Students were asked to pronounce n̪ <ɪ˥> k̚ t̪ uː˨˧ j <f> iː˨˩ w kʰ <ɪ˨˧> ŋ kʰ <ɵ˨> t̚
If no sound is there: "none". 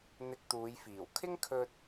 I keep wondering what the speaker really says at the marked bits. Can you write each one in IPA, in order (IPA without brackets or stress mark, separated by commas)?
ɪ˧, f, ɪ˥, ɵ˧